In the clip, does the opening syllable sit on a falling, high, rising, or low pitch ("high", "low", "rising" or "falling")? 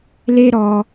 high